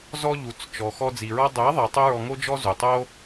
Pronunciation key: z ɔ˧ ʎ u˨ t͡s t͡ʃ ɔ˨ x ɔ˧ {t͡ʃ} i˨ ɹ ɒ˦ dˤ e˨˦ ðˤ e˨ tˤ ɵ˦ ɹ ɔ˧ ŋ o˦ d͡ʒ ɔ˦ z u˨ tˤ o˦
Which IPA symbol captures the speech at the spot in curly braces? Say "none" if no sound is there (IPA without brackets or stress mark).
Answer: d͡z